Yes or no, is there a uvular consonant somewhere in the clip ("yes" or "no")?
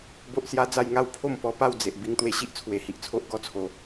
no